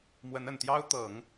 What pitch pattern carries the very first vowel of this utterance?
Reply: rising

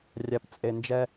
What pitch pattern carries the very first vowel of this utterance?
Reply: low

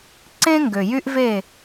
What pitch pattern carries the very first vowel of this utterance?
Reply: high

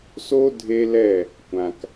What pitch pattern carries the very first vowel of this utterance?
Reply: high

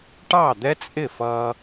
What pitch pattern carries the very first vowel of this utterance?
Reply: falling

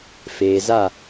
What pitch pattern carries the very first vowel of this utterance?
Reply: low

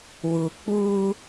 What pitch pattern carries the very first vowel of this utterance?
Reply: low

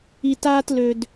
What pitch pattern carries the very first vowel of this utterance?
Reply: high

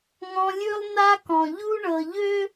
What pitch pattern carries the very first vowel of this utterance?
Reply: high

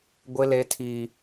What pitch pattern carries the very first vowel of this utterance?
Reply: high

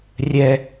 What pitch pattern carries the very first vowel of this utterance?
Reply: high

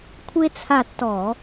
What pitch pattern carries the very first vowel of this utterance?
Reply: high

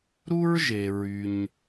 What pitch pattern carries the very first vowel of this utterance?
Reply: high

